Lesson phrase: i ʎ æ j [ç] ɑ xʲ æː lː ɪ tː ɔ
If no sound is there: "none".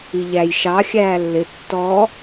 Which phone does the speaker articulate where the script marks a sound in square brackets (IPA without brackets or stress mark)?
ʃ